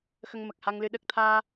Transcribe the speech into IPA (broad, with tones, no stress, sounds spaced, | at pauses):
x ə˧ ŋ m ə˨˩ k̚ h a˧ ŋ l ɨ˧˥ ɗ ə˨˩ k̚ t̪ʰ aː˧